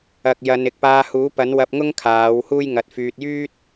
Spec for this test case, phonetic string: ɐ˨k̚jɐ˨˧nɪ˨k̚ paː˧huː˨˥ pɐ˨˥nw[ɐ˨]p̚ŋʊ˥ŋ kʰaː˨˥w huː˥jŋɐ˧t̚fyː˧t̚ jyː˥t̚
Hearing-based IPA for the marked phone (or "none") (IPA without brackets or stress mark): ɐ˧